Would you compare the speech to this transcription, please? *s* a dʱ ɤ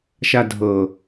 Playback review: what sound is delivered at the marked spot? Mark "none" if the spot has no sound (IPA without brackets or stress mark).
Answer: ʃ